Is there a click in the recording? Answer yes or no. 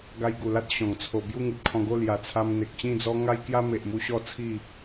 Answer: no